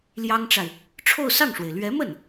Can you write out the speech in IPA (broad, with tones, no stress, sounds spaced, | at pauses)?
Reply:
l j ɑ˥ ŋ ʈ͡ʂ a˨ ɪ̯ | ʈ͡ʂʰ o˥˧ ʊ̯ s ɑ˥˩ ŋ ʂ w e˩ ɪ̯ l ɥ ɛ˧˥ m ə˥˩ n